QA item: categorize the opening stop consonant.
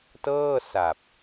plain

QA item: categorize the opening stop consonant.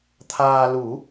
aspirated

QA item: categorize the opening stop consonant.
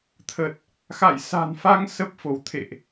aspirated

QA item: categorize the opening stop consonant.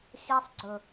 click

